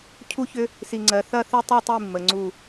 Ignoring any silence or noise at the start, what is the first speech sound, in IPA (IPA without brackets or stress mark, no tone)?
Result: cʰ